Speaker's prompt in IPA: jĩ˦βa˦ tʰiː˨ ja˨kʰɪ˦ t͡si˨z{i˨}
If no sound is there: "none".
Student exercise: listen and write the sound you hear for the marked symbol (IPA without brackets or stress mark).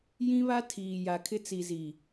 i˨